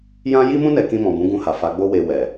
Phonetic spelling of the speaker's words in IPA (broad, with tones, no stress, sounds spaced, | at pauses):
j ã˦ j i˦ m ũ˦ n ɛ˧ k ĩ˧ m ɔ̃˨ b ũ˨˦ ɡ ũ˧ h a˨ f a˨˦ ɡ͡b o˦ w e˧ w ɛ˨